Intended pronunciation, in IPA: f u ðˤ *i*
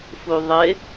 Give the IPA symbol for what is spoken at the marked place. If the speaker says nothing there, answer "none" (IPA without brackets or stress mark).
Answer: ɪ